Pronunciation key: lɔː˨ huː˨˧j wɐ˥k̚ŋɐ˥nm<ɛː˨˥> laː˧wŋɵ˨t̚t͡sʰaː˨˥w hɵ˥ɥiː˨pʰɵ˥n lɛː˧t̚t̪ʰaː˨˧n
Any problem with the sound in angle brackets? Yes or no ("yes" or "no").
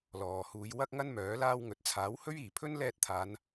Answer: yes